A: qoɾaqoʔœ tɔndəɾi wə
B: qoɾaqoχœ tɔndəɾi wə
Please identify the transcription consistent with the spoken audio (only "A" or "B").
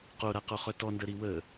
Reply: B